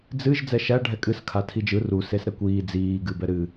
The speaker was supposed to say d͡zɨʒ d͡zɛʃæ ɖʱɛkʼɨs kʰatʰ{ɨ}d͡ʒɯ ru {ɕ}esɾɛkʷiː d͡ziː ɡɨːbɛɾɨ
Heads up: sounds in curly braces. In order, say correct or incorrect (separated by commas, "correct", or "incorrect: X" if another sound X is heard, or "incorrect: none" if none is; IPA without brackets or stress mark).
incorrect: i, incorrect: s